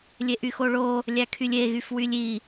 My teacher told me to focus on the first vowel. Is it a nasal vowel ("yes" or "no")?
no